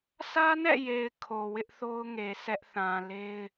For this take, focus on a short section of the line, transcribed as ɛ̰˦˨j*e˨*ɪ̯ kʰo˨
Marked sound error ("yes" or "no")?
no